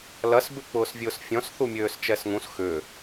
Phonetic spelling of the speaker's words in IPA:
lɐs bʏk͡pʊːsvʲʊːsfʲɔ̃s θumʲøːst͡ʃɛsŋũs xʏ

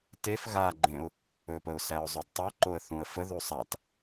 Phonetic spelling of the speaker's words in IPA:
tef ɣaɡ͡ǃẽʊ̯ | ɵpəʊ̯sæʊ̯zˤœd tˤoǃoə̯ θũə̯fə ðusˤat

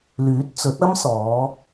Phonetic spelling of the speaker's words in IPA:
lyː˨˥t̚t͡sɵ˨˥t̚ɐ˥msɔː˨˧

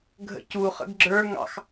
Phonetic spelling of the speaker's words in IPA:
ɡʱə̰cuχə̰ɡ ɡ͡ǁə˞ ŋɑ̰x

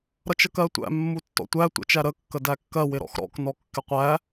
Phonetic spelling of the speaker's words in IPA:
ɾʌt͡ʃəkɜtʷæ̰ mːutːɔ̰tʷæ tʷə̰t͡ʃæɾə kːədækːɜ wɪɾɔ̰xɾɔ̰k nɔkːɪqʷæ

